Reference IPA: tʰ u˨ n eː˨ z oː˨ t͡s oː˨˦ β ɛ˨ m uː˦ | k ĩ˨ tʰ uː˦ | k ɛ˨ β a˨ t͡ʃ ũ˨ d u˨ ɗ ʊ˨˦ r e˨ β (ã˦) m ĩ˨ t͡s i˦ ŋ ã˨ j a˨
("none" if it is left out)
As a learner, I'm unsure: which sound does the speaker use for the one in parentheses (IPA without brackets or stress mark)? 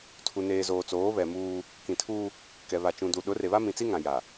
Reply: a˦